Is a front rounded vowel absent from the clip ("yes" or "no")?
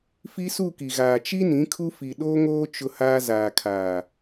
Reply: yes